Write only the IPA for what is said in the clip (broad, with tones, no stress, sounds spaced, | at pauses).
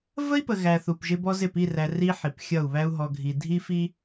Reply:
v ə˦ i̯ p ə˨ ɣ æ˨ θ u˨ p ʒ ɪ˦ b ɔ˦ z ɪ˦˨ p i˦˨ r æ˨ r i˦ ħ i˨ p xʲ ʌ˦˨ u̯ β æ˦ u̯ ɦ ɔ˨ ɡʱ i˨ dʱ i˦ f i˦